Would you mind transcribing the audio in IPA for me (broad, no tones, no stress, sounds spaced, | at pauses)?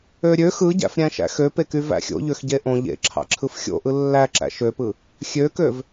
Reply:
ø ɾʲ ø x ɯ ɟ æ̰ f ɾʲ æ̃ ʃ æ̰ x ø p e k y v æ̰ xʲ o̰ ʎ ø x ɟ e ʔ õ ʎ ḛ ǁʰ ɑ̰ ǁʰ ɯ f xʲ o̰ ʔ ɯ lː æ ǁ æ̰ ʃ ø p ɯ | xʲ ø k ø v